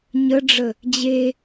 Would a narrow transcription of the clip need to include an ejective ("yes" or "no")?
no